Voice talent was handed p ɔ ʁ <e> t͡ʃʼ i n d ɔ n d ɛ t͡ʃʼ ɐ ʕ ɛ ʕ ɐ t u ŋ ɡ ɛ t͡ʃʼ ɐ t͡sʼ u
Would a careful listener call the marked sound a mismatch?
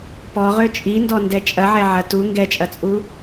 yes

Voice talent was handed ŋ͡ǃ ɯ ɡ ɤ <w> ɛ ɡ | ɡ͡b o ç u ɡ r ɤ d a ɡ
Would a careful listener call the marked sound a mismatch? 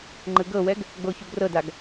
no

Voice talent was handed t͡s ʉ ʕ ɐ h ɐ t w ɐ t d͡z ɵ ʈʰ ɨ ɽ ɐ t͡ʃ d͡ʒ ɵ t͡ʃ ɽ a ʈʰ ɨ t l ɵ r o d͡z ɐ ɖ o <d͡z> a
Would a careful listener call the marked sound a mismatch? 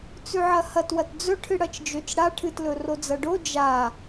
yes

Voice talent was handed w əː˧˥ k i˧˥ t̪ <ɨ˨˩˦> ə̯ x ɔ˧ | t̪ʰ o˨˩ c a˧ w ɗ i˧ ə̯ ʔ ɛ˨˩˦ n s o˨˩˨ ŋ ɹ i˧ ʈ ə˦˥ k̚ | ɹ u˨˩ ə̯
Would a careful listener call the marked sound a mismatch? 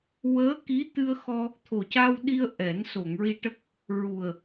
yes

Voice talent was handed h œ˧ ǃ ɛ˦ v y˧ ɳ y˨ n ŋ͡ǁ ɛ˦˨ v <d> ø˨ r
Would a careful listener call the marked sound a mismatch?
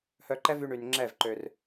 yes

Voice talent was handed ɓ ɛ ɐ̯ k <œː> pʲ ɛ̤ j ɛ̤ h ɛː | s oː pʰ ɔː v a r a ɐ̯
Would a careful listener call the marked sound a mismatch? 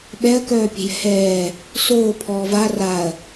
no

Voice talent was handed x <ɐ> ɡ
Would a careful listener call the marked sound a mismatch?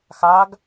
yes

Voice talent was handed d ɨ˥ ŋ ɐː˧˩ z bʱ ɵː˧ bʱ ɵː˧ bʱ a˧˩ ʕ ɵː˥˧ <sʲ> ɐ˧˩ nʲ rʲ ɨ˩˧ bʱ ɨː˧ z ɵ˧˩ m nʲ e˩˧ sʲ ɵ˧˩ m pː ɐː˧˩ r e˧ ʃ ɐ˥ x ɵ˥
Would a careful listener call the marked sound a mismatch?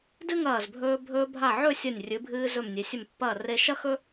no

